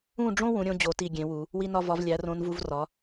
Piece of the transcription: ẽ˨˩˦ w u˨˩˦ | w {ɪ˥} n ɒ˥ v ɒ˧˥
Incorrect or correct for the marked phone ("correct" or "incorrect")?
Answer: incorrect